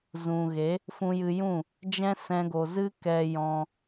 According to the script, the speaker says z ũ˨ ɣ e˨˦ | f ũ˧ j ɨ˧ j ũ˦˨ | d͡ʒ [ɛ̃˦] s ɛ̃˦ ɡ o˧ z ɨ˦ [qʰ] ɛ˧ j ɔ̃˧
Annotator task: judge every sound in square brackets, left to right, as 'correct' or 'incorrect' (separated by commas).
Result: correct, incorrect